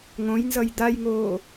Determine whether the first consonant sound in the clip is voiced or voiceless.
voiced